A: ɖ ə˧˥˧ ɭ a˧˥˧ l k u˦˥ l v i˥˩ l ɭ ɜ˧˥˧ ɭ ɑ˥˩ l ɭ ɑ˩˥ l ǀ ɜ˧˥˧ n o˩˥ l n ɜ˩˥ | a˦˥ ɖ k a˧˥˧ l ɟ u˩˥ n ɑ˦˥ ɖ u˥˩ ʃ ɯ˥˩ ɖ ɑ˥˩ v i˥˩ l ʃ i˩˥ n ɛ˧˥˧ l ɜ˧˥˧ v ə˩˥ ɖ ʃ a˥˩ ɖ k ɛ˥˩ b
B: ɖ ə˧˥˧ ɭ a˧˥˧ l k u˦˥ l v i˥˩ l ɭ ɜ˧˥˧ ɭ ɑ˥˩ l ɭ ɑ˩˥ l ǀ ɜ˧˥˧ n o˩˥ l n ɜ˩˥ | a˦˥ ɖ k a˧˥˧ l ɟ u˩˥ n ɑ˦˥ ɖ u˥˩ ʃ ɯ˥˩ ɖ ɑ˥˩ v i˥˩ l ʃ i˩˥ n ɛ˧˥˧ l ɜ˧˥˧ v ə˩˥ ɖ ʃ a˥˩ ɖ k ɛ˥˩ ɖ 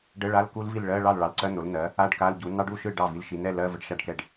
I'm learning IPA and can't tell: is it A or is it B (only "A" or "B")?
B